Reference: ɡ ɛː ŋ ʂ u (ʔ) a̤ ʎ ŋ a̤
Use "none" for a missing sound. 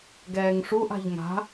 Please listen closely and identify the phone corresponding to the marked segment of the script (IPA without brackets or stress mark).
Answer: ʔ